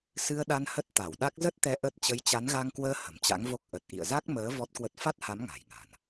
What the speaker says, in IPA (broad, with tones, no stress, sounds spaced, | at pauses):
s ɨ˧ ə̯ ɗ a˧ n h ə˦˥ t̚ t̪ a˧˩ w ɗ a˦˥ k̚ z ə˦˥ t̚ t̪ ɛ˨˦ ʔ ə˦˥ t̚ t͡ɕ ə˨˦ j t͡ɕ a˨˦ n ɣ a˧ ŋ k w əː˧ h ə̤˨˩ m t͡ɕ a̰˧˥ ŋ v o˦˥ k̚ ʔ ə˨˩ t̚ ʔ ḭ˧˨ ə̯ z a˦˥ k̚ m əː˨˦ v ɔ˦˥ t̚ k w ə˦˥ t̚ f a˦˥ t̚ h a˨˦ m ŋ a̤˨˩ j ŋ a̤˨˩ n